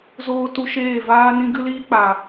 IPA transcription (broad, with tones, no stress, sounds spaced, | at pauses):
z oː˧ t u˧ ʃ eː˦˨ v aː˦ n ĩ˦ ɡ ɨ˦ l iː˦ k͡p a˨